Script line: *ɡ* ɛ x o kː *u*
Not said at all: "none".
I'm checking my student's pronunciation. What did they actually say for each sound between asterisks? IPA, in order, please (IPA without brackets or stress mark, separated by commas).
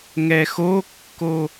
ŋ, o